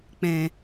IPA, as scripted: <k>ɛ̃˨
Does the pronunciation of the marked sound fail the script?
yes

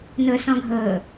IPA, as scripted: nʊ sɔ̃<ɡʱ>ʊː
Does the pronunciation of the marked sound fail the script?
no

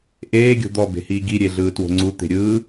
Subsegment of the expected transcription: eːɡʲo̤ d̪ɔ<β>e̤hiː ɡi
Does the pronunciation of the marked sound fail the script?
yes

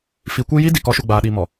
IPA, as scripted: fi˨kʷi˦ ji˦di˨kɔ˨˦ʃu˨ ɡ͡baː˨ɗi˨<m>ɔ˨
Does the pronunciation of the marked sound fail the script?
no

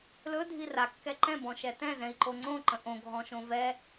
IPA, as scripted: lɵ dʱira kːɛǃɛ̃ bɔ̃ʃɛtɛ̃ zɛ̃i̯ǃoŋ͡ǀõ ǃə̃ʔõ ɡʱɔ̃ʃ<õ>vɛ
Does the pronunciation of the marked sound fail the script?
no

